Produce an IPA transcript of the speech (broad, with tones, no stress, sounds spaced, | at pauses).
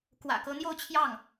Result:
k w ä̰˨˩ k ɤ˧˥ n̪ j o˥˧ ʊ̯ t͡ɕʰ j ɑ˥˩ ŋ